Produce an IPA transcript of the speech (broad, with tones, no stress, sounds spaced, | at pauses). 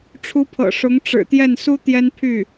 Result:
ʈ͡ʂʰ u˧˥ pʰ ɤ̰˨˩ ʂ ʊ˧˥ ŋ ʈ͡ʂ ɻ̩˨˩ t̪ j ɛ˥˩ n s u˥ t̪ j ɛ˥ n pʰ y˥˩